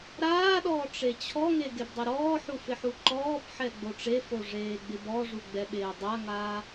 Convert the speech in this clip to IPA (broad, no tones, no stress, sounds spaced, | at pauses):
ɾ aː ɗ ɔː ʈ͡ʂ e t͡ɕʰ ɔ ŋ e ɡ e b dˤ e ɾ ɔː ħ u f ɪ ħ u ǃ ɔː b ħ ɛ ɡ͡b o ʈ͡ʂ e f o ʐ eː ɡ͡b ɪ b ɔ ʐ u ɡ͡b ɛ ɓ eː dˤ a ŋ aː